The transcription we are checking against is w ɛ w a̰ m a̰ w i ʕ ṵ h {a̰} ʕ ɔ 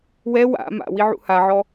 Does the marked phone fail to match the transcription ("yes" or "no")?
yes